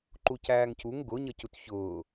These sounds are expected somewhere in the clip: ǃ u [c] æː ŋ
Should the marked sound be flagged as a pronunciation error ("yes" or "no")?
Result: no